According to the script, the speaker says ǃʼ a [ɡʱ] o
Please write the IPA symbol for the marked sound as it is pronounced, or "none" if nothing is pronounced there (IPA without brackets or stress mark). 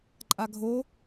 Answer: ɡʱ